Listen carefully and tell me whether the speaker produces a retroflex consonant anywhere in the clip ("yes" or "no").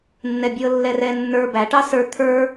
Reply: yes